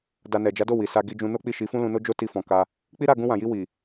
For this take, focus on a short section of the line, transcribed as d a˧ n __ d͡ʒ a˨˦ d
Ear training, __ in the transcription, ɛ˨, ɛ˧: ɛ˨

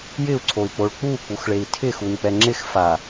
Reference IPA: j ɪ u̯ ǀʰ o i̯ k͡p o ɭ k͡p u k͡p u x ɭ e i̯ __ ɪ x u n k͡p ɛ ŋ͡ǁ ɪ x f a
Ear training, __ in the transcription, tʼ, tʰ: tʰ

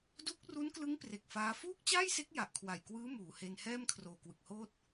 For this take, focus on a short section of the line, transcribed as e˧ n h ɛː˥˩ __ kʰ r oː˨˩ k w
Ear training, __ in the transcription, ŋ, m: m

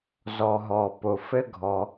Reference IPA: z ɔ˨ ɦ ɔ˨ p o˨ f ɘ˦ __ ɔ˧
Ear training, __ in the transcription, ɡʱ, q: ɡʱ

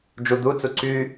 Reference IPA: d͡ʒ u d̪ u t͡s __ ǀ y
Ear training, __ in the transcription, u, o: u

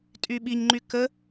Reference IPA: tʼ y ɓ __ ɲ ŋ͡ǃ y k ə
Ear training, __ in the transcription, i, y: i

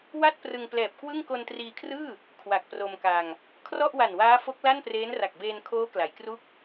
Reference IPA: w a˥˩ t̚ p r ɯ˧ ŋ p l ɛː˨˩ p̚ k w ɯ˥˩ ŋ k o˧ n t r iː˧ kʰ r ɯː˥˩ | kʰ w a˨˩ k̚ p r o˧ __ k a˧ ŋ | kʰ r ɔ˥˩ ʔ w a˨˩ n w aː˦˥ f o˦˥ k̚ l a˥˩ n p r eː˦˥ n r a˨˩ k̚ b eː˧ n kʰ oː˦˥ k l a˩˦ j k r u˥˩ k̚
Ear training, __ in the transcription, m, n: m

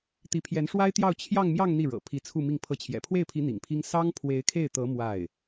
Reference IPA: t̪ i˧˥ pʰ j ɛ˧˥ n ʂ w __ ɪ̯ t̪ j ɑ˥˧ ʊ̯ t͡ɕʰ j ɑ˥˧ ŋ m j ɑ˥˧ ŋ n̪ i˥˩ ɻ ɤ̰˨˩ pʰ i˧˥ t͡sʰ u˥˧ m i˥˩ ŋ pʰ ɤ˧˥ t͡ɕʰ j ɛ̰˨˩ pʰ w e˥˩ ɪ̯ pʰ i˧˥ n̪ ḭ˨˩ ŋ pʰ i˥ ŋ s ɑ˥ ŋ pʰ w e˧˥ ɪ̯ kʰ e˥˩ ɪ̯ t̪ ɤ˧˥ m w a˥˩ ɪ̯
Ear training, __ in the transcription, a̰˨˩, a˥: a˥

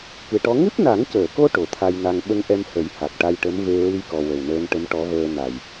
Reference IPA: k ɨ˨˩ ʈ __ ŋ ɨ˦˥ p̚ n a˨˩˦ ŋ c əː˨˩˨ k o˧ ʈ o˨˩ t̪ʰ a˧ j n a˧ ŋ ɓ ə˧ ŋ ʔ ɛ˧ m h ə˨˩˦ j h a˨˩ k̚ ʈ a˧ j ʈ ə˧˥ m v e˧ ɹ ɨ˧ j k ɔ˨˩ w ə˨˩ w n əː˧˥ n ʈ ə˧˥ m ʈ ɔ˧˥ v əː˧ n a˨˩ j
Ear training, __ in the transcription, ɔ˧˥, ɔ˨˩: ɔ˧˥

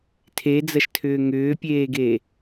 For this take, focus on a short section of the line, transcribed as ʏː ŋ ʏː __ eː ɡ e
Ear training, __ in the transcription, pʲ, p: pʲ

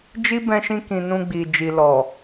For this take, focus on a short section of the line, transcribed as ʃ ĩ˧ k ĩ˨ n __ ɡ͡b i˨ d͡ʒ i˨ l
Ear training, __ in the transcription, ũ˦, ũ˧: ũ˧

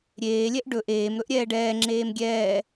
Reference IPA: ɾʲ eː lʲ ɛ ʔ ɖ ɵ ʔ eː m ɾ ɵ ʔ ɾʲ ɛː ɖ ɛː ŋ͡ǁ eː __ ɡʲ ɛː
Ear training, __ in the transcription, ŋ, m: m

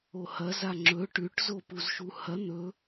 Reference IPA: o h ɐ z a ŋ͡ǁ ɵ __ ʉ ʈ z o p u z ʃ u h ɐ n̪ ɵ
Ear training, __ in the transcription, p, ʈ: ʈ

